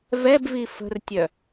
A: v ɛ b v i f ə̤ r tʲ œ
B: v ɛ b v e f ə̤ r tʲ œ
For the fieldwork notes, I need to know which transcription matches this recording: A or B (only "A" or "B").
A